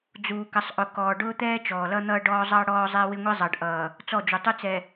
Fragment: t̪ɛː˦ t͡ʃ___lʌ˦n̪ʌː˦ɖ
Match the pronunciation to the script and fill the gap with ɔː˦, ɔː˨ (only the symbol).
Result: ɔː˨